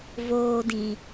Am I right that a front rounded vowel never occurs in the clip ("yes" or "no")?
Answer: yes